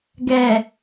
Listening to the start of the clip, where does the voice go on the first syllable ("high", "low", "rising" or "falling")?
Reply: low